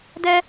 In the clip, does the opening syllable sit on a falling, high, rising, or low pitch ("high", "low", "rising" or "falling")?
high